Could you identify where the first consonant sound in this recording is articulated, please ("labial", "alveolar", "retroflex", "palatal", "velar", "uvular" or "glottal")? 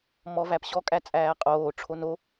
labial